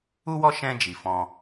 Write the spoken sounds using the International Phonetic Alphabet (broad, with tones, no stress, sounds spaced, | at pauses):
u˦ w ɔ˦ ʃ ɛ̃˧ d͡ʒ i˨ f ɔ̃˧